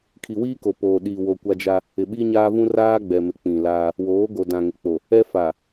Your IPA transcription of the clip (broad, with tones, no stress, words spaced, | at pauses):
kʰi˨wiː˦ko˨poː˨ ɗiː˨wo˨ kʷa˦d͡ʒa˦ | ɪ˨ɓi˦ɲaː˦vũ˦ raː˦ɡ͡bɛ˨mɪ˨ k͡pĩ˨laː˦ | woː˨˦ɡo˨ dã˨ŋɪ˨k͡po˨ | ɛ˦fa˨